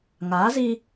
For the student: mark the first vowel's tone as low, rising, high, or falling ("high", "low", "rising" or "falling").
rising